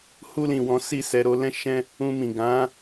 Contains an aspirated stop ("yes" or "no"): no